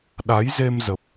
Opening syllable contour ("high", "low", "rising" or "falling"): rising